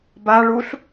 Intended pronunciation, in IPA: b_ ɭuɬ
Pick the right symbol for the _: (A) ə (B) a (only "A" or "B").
B